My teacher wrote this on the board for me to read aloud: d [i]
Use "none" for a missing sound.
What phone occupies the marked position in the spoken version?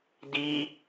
i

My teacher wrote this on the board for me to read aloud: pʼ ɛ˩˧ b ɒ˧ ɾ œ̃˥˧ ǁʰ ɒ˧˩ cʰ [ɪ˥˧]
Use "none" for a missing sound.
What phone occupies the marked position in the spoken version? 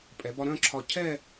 ɛ˥˧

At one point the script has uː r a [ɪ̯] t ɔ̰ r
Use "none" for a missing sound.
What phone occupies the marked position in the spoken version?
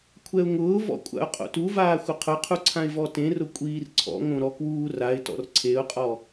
ɪ̯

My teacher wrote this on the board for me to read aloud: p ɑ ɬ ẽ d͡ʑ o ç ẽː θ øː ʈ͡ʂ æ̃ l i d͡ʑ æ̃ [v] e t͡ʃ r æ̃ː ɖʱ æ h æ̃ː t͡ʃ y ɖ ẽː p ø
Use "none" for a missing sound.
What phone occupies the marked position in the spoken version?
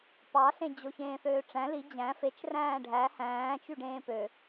f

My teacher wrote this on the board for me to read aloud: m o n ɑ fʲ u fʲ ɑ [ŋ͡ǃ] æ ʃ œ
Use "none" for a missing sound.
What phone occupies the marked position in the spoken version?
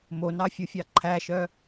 ǃʰ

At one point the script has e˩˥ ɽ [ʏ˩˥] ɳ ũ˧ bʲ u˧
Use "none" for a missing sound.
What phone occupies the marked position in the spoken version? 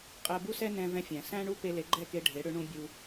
ʏ˩˥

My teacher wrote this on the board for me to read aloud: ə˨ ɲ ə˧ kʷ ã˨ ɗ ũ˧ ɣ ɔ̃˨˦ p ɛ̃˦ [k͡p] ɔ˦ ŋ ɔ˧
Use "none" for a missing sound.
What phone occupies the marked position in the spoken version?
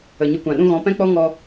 k͡p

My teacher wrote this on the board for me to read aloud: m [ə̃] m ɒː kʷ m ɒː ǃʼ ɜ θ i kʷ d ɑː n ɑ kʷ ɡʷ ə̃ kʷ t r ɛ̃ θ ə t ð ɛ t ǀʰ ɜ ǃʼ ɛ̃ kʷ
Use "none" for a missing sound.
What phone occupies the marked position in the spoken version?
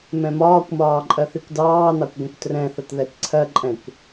ɛ̃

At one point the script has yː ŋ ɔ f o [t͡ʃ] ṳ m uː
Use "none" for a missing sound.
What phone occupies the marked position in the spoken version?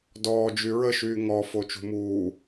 t͡ʃ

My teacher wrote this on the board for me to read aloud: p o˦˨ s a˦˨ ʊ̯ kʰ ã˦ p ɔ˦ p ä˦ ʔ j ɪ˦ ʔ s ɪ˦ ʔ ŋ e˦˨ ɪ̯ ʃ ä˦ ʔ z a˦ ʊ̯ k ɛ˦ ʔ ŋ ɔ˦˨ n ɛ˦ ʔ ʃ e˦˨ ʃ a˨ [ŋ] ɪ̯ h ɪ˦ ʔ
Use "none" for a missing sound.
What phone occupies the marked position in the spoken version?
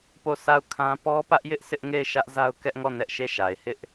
none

